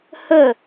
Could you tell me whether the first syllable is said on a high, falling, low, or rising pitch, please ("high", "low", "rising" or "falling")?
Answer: falling